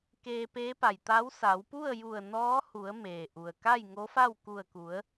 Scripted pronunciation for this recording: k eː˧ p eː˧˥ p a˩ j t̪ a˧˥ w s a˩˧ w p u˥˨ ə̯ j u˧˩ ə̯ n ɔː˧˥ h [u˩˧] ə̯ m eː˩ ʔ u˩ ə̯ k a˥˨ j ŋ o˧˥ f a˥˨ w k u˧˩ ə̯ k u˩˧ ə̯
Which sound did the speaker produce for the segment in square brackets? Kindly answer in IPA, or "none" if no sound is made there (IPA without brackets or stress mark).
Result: u˩˧